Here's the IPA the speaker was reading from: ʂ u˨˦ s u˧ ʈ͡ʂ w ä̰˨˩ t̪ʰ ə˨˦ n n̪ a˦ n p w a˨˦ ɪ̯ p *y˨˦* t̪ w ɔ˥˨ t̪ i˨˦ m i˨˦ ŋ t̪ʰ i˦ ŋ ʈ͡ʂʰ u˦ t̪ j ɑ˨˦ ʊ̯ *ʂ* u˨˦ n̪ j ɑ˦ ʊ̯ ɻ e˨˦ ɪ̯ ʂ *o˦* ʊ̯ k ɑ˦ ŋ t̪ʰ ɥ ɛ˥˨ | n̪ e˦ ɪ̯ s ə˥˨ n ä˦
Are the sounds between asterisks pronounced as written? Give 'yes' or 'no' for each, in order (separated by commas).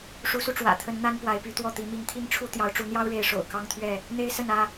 yes, no, no